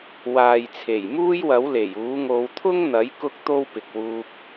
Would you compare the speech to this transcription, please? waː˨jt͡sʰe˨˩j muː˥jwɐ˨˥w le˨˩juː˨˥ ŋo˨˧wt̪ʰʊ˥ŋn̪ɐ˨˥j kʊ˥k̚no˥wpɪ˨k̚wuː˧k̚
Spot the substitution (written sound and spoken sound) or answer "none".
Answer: n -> t̪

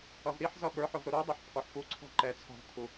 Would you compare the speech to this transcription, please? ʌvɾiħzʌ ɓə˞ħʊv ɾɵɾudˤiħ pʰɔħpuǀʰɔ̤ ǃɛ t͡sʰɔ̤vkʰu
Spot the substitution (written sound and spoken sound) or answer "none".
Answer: ɵ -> ʊ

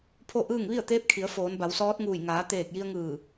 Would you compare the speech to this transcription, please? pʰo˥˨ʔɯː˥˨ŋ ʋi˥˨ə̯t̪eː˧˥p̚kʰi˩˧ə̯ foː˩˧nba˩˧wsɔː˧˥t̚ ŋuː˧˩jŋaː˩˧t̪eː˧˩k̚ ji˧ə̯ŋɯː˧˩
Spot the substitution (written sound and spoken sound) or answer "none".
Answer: none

